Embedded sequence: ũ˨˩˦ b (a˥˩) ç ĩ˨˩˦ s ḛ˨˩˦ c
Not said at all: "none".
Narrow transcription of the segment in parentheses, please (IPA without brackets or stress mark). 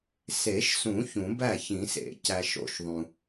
æ˥˩